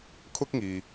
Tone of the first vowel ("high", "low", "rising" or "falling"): high